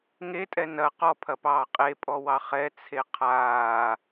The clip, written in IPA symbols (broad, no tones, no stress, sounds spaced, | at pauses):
ŋ e tʼ ɛ n ɐ q ɔ pʰ ɐ p ɑː qʼ e pʼ ɔ w ɑ χ ɛ t͡sʰ e qʰ aː